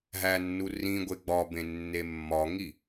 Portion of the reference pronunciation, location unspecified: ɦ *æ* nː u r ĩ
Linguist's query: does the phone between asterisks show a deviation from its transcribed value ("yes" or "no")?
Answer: no